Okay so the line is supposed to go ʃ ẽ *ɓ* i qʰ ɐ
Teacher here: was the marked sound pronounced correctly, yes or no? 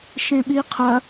yes